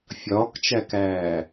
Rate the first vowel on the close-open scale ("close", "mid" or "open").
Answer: open